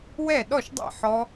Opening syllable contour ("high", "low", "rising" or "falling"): falling